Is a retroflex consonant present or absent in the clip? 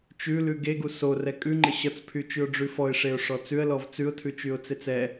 present